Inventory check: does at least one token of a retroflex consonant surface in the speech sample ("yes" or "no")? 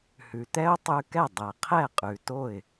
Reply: no